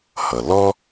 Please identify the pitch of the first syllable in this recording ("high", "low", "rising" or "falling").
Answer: low